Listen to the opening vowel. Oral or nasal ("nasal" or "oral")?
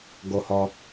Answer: oral